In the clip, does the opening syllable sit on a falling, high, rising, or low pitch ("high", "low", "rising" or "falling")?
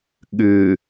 low